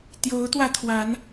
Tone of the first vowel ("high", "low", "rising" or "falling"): rising